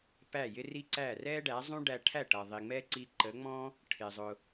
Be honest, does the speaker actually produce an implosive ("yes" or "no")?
no